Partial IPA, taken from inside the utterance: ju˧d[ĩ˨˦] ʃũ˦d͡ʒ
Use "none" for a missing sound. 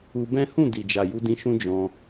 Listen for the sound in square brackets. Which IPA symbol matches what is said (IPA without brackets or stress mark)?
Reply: ĩ˧